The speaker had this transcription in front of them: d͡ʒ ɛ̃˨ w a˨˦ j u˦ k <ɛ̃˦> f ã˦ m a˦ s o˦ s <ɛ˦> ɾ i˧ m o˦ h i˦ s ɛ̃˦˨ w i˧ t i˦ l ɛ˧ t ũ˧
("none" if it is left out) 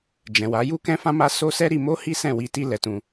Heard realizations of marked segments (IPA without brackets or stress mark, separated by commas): ɛ̃˦, ɛ˦